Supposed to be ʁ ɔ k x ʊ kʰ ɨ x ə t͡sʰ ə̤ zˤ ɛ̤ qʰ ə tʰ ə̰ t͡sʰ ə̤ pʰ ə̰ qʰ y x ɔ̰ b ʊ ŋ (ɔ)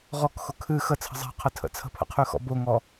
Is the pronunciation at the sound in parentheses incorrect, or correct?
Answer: correct